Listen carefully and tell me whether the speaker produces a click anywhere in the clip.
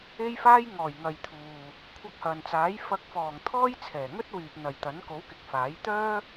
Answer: no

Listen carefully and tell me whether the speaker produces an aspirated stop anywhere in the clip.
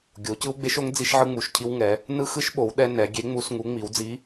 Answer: yes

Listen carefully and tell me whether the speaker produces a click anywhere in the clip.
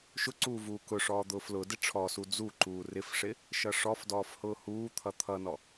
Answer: yes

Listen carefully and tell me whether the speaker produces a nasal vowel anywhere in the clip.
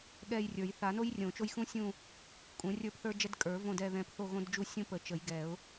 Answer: yes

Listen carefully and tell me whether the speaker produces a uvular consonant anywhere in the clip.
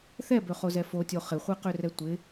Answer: yes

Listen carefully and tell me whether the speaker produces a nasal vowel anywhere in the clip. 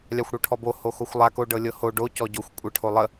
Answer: no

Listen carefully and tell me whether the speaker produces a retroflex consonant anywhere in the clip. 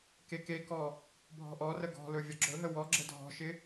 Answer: no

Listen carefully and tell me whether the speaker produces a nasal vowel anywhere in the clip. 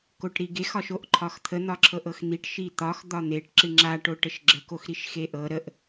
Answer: no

